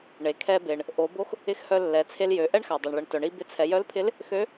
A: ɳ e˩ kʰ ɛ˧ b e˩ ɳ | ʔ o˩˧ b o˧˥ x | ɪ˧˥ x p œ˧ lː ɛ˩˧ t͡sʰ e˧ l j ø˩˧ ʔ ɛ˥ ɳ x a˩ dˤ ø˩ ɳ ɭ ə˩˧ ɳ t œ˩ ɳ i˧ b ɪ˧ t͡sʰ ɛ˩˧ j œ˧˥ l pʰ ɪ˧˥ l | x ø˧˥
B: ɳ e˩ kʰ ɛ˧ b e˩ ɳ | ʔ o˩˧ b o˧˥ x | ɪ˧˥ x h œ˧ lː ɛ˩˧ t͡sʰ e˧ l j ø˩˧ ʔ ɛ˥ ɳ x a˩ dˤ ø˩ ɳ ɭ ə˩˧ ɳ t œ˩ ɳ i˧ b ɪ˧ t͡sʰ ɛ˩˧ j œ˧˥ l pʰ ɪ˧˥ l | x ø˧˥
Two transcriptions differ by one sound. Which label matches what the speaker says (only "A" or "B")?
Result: B